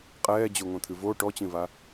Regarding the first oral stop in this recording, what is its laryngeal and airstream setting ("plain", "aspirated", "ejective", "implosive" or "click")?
ejective